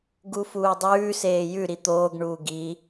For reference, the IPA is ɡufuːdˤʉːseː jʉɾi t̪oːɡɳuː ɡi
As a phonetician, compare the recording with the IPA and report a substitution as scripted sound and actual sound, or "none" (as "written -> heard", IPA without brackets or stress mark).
none